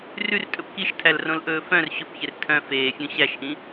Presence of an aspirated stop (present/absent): present